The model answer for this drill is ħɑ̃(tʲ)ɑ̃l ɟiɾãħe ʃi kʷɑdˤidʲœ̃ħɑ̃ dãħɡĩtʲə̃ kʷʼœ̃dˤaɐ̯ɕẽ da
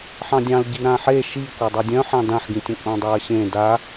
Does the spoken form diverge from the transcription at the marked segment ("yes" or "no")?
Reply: yes